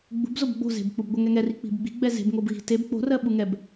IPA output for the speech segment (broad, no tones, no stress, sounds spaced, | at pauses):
ɡ͡b ṳ b z o b ɡ͡b o̤ z e̤ b k͡p u b ɡʷ ɜ ŋ ɛ ŋ ɛ r i k͡p i̤ b ɡ͡b i̤ ɡ͡b ɛ z e̤ b ŋ o b ɣ i̤ t e b k͡p o̤ r ɜ ɓ u ŋ ɛ b